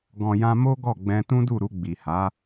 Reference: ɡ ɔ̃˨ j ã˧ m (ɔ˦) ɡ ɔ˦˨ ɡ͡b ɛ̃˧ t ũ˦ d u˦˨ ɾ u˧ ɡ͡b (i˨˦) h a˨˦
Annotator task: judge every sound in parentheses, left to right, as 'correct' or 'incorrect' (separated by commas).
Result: incorrect, incorrect